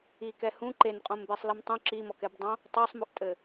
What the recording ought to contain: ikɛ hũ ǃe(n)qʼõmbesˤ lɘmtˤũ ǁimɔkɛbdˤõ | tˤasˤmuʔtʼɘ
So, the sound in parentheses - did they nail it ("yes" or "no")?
yes